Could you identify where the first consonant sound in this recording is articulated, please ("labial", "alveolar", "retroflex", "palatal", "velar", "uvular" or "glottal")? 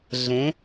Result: alveolar